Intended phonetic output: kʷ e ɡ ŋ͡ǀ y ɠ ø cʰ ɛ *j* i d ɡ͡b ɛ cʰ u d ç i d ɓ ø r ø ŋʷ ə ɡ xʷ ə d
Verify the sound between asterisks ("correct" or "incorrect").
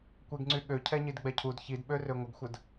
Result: incorrect